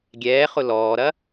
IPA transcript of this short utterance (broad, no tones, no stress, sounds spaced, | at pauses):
ɡʲ ɛː χ ʊ l ɔː ɾ ɐ